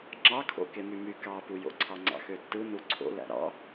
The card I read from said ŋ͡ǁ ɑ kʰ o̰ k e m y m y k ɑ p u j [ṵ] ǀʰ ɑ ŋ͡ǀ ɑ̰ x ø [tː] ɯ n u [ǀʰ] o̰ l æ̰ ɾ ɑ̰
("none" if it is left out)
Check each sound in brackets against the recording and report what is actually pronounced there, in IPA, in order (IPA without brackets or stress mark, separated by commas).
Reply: o̰, tː, ǀʰ